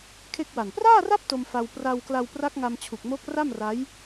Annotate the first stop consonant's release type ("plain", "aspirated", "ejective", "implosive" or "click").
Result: aspirated